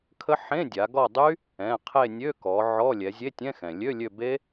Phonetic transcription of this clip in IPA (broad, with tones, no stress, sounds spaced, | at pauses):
kʰ ə˦˥ ħ ẽ˧˥˧ dʲ a˩˧ ɡ ɔ˦˨ dˤ y˦˥ | ɛ̃˩˧˩ qʰ e˦˨ nʲ ø˧˥˧ k ɔ˩˧ ʕ ɔ˧˥˧ lʲ ɛ˩˧ zʲ e˧˥˧ tʲ ɛ̃˧˥˧ x ɛ̃˩ lʲ ø˧˥˧ lʲ ø˦˨ b e˦˥